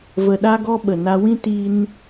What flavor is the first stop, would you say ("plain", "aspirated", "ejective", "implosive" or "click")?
implosive